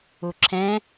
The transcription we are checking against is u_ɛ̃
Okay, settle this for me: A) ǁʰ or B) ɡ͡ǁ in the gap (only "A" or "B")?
A